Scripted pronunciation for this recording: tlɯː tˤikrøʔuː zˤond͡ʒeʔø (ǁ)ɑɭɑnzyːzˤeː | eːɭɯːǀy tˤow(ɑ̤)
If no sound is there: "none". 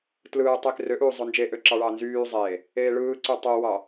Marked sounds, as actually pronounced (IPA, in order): ǁ, ɑ

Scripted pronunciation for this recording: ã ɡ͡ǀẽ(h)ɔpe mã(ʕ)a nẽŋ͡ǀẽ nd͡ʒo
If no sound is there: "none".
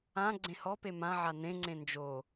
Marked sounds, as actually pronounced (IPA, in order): h, ʕ

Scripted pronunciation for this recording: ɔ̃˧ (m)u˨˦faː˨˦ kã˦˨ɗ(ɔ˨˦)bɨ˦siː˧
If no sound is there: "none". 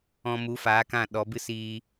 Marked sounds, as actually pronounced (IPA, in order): m, ɔ˨˦

